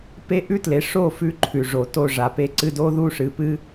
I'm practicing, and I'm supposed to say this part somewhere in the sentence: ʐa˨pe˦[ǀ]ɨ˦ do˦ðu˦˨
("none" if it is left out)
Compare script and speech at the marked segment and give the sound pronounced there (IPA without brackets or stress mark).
ǀ